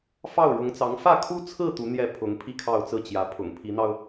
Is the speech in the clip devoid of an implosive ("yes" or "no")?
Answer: yes